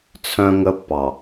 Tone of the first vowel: high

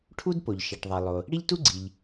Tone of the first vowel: high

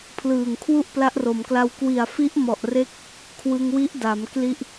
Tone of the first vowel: low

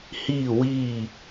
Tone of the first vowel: falling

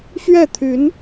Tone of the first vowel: falling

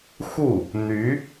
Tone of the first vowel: falling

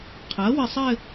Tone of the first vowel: rising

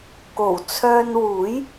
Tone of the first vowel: low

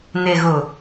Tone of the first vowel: low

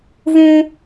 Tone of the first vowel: high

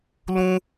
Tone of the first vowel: high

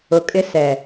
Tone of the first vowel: low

